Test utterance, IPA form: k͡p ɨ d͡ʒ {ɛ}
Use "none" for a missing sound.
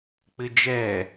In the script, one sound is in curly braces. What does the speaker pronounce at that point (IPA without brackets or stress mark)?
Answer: ɛ